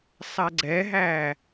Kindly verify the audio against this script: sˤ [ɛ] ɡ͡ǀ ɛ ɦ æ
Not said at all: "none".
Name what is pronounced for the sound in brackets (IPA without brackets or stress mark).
ɛ